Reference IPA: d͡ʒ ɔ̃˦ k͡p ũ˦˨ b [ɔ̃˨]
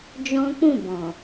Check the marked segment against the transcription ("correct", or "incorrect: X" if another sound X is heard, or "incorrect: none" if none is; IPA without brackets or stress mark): correct